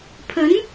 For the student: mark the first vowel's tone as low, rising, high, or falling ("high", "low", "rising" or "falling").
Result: rising